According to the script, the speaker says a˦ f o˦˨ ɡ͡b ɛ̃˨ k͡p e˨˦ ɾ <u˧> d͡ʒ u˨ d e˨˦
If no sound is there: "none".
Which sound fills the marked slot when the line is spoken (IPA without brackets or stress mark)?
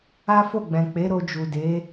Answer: o˧